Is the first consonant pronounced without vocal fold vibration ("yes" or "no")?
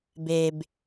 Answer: no